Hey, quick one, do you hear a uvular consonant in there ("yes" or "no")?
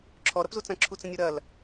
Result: no